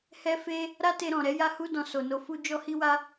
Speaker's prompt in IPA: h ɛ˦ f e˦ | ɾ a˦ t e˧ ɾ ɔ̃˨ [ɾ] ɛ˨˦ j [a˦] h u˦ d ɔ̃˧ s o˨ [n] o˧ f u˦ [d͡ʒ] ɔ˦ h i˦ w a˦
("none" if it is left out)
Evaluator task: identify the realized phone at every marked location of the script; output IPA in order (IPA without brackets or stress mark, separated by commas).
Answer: ɾ, a˦, n, d͡ʒ